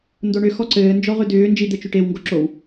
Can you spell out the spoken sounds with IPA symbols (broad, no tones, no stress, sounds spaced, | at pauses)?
n d o ɳ ʏ x ɔ ǀ ɘː n d͡ʒ ɔ ʁ ʏ d ʏː n d͡ʒ i d̪ ɘ t͡ʃ ʏ ʈ e w ŋ ɡ o ǁ o w